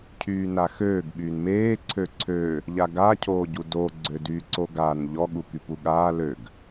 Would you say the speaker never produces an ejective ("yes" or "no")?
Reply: yes